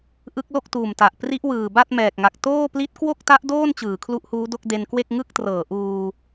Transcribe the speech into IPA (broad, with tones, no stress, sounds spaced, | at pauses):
ʔ ɯ˦˥ k̚ l o˥˩ k̚ t uː˨˩ m t a˨˩ ʔ p r i˦˥ ʔ w ɯː˨˩ b a˥˩ t̚ m ɛː˨˩ k̚ ŋ a˨˩ k̚ t oː˥˩ p l i˦˥ t̚ k w o˥˩ k̚ t a˦˥ ʔ d oː˥˩ n t͡ɕ ɯː˩˦ kʰ l u˦˥ ʔ h uː˦˥ d o˥˩ k̚ d e˧ n k w e˥˩ k̚ ŋ ɯ˥˩ k̚ t r ɤː˩˦ ʔ uː˧